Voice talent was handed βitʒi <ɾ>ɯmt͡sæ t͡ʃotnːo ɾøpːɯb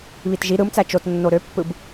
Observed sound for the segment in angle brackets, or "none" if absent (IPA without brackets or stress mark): ɾ